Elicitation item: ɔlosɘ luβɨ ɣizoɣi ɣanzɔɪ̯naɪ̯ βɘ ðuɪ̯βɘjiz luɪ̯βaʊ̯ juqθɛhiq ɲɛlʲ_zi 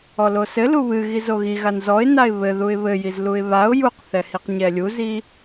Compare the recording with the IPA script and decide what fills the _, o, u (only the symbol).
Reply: u